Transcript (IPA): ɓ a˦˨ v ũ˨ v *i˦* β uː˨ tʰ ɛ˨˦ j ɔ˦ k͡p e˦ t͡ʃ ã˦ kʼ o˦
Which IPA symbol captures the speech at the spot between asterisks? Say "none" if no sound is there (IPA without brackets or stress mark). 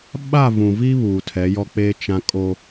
i˦